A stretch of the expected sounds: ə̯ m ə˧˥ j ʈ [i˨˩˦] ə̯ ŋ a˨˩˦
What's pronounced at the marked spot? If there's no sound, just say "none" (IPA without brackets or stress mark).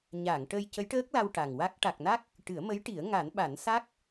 i˨˩˦